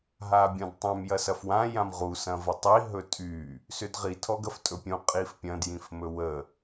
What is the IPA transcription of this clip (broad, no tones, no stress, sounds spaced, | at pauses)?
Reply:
ɦ a bʲ ɔ̃ d tˤ ã m j ɐ s ɐ f w ã j ã m ʁ u s ɐ̃ v ɐ tˤ i ɦ ɵ tʼ y | s ʏ d ʁ i tʰ ɔ ɡ ɐ f tʼ ɵ pʲ ũ qʼ i f pʲ ɐ̃ d j ĩ f m ɵ w ə